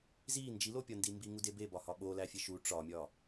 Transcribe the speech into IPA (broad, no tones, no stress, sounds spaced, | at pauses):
z i n d͡ʒ i l o pʲ ɒ n d i m b i ŋ u d e b e b ɒ h ɒ ɓ o l æ fʲ e ʃ u ʈ͡ʂ ɒ mʲ ɒ